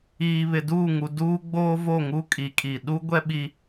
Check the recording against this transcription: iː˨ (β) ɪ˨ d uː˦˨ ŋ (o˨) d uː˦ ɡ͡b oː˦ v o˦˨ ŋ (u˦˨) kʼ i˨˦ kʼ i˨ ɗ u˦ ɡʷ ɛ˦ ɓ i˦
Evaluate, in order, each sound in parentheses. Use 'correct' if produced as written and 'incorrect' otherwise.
correct, incorrect, incorrect

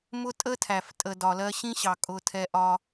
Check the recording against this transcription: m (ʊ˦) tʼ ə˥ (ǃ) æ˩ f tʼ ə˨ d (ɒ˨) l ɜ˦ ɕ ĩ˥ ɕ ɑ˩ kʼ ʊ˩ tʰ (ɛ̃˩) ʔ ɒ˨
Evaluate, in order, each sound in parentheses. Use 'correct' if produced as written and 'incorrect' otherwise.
correct, incorrect, incorrect, incorrect

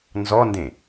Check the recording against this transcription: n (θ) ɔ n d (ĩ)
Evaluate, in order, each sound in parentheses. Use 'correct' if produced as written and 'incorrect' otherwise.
incorrect, incorrect

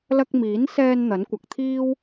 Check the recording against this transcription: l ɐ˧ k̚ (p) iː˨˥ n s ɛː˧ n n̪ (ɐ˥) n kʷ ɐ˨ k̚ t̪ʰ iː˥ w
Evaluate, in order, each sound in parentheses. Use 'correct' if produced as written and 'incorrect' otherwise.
incorrect, incorrect

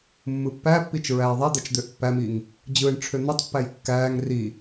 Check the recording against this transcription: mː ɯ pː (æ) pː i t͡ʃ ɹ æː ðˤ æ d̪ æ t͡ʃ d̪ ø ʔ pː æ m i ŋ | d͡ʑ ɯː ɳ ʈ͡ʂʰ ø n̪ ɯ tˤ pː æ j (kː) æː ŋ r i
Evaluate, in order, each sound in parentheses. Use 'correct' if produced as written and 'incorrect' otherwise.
correct, correct

